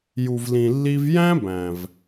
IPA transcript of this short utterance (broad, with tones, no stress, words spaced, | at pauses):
ju˧vlĩ˧lːi˦v jæ̃˦bæ̃˨v